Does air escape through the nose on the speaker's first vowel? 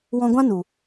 yes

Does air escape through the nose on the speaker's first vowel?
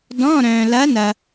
yes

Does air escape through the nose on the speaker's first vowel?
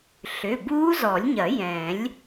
no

